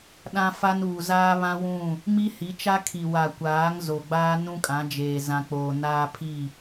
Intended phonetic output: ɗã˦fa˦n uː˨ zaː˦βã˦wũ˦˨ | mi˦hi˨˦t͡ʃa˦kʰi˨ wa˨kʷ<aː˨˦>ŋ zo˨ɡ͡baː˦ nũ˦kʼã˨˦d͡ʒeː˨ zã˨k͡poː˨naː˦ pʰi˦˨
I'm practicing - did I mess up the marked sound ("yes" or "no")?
no